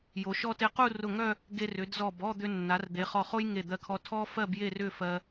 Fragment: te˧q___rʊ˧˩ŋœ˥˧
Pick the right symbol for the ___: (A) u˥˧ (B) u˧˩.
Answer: A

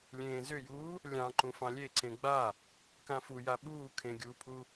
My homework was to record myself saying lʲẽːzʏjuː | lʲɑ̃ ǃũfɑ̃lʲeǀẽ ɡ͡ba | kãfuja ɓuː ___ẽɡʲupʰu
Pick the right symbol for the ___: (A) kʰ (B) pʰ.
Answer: A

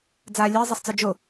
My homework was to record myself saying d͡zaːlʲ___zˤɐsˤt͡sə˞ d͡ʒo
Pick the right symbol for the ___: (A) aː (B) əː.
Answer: B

